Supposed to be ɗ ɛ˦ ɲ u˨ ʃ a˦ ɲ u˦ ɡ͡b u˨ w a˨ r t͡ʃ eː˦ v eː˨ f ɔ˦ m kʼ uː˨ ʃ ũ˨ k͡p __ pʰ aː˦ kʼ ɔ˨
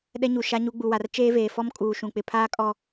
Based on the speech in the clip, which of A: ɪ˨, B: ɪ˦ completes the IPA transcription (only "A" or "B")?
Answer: A